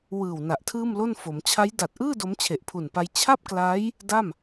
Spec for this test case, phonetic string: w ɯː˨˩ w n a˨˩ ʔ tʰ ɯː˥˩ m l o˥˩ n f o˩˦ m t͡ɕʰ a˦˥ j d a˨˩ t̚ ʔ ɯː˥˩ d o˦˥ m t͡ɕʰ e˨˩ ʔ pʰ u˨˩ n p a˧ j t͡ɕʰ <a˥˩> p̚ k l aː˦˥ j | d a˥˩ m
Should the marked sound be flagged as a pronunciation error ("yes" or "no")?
no